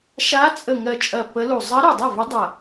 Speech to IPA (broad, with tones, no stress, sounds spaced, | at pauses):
ʃ a˧˥ t͡sʼ ə˧˩ ŋ ɜ˧˩ t͡ʃʼ ɐ˧˩ p ə˧˥ l u˧˩ zˤ ɜ˧˥ ɾ u˧˩ dˤ a˥˩ v ɐ˧˥ dˤ ɐ˧˩